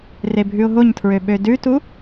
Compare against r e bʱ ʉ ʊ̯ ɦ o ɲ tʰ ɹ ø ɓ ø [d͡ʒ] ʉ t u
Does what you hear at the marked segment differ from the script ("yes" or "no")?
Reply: yes